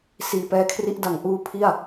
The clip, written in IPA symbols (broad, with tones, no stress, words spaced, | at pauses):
siː˨˩pɛː˧kʰri˦˥ʔ da˨˩ŋʔuː˧ pʰi˥˩a̯